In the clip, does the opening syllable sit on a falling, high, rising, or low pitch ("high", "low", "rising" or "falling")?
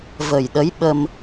low